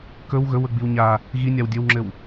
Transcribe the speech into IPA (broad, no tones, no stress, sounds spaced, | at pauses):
k ɵ w ɣ ɵ w ɵ ɡ͡b i w ɲ a | ɣ i nʲ a w dʲ ɘ w ŋ͡ǁ ɘ w